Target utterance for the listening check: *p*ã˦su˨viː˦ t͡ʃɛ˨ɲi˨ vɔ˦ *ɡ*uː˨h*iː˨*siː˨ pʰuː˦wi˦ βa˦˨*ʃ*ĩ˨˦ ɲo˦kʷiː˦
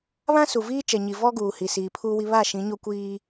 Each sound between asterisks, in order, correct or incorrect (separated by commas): incorrect, correct, incorrect, correct